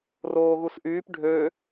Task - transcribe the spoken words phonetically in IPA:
roːɣusʔyːp ɖʱø

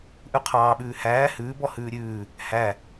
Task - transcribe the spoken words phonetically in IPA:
ʔʉqʰɑːɓʉː hæː hʉːbɔ hʉːɾʲʉː | hæ

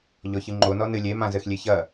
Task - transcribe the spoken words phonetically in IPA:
ʎɔçɨŋ͡ǃo nɔnɨlʲe mãzɘxlʲeçɐ

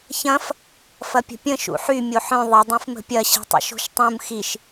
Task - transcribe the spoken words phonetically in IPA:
çɐ̃f | fɐpʲə̤pʲə̃ ʃṵħy mʲoħœ̃ ðˤə dˤĩfmə̤pʲɐ ɕi̤tˤə̰ʃo̤ʃtˤũm xiʃ

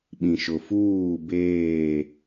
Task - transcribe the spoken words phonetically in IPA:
ɓĩ˨ʃʊ˨ fuː˦˨beː˦˨

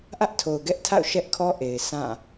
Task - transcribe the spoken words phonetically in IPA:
ʔä˦ʔtʰo˨ʊ̯ɡɛ˦ʔtʰa̰˦˨ʊ̯ ʃɛ˦ʔkʰɔ˦ʔe˨ɪ̯ sã˦˨

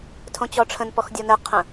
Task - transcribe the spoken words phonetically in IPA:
tʰõt͡ɕɔʈ͡ʂʰə̃n pɔxdʲɔnɘ qʰə̃

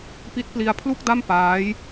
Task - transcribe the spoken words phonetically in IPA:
pi˦˥t̚pli˧a̯ pʰlu˥˩k̚da˥˩m paː˦˥j

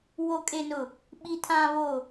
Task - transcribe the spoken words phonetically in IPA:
wo˨kʼe˨nʊ˨ | ɓi˨tʰã˨βo˨

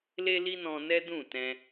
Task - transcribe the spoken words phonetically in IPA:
le˦li˦nɔ̃˧ nɛ˦dũ˦˨ tɛ̃˧

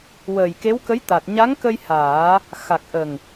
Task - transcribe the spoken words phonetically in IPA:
wəː˨˩jke˧˥wkə˧˥jt̪a˨˩t̚ ɲa˧˥ŋkə˧j haː˨˩˦ | xa˨˩k̚ʔə˨˩ŋ

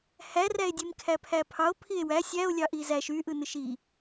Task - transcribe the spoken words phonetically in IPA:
hæræe̯dʲem kʰæpʰæpʰɑo̯ pʰie̯wæ sʲæo̯lʲɑʔi zæʃ yʔɯnɯʃ i

